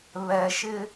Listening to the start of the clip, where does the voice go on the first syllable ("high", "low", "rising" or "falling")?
low